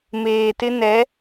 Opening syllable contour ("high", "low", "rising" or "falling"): low